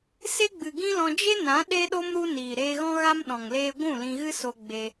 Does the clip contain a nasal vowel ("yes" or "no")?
yes